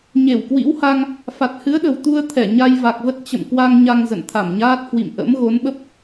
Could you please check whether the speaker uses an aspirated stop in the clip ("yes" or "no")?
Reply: yes